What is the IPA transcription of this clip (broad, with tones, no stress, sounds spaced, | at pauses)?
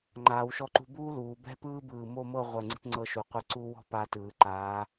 ŋ͡ǃ aː˩˧ w ʃ ɔ˧ ǃ ṳ˧ b uː˥ l uː˩˧ b ɛ̤˥ p ɯː˥ b ɯː˧˩ m o˥˧ m ɤ˥˧ ʁʷ ɛ˧˩ ŋ͡ǀ i̤˧ t ŋ͡ǀ ɤ˧ ʃ u˩˧ qʷ ɯ˧ ǀ u˧ w ɔ̤˥˧ p a˧ t ɯː˩˧ ǃ aː˩˧